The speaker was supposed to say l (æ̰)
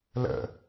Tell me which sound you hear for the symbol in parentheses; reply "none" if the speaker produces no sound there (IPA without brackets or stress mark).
ə̰